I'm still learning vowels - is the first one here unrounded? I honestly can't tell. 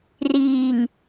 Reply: yes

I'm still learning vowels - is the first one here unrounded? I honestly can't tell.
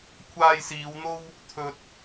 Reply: yes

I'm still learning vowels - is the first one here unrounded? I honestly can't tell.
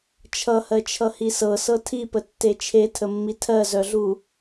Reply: yes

